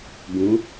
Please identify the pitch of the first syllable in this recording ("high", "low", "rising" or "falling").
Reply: rising